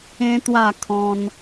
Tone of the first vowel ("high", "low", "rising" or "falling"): high